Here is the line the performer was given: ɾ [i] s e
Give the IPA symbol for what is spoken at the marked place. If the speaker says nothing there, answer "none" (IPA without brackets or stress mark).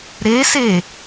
e